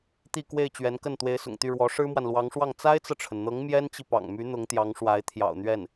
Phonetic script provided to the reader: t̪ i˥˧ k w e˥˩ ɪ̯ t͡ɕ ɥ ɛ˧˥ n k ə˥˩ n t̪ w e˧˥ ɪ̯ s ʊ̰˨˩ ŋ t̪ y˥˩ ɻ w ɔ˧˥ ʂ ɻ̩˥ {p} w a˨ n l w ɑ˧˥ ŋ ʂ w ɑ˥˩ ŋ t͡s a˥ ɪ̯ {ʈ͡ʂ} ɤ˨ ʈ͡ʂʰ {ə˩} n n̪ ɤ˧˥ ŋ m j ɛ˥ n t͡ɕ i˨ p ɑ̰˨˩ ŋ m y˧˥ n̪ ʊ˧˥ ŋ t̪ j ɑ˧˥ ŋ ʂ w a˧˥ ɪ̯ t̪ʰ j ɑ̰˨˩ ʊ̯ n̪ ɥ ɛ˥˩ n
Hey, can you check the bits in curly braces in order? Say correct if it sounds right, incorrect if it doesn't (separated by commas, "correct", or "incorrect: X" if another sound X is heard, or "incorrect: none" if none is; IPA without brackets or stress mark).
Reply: incorrect: m, incorrect: t͡s, correct